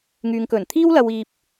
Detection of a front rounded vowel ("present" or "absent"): present